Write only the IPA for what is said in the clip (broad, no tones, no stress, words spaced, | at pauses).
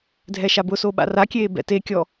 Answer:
dʱɛʃabʊso ɓa̰rakʲeː bɛ̰tekʲɔ